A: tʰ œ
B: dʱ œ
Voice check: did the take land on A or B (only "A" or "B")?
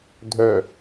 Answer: B